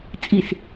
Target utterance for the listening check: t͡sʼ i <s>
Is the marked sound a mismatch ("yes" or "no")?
no